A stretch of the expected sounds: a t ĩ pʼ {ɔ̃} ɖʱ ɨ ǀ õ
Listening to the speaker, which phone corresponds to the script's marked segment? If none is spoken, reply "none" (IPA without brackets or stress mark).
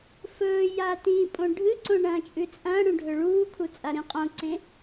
õ